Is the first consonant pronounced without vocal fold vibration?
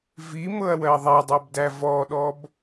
no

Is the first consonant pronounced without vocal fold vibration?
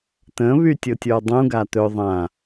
yes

